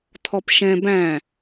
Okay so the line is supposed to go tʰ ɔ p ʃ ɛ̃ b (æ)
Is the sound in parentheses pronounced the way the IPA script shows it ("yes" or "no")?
no